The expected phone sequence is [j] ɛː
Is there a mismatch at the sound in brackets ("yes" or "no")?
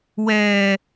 yes